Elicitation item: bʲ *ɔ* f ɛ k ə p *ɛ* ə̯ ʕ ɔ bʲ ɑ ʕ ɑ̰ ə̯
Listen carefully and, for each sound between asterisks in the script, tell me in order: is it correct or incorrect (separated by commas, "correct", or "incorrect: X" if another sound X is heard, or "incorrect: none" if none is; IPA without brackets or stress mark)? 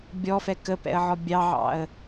correct, incorrect: ɛ̰